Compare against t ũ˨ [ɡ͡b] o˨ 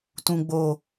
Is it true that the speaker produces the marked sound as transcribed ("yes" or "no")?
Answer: yes